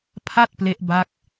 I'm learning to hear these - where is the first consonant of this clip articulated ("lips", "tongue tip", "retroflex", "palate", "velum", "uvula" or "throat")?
lips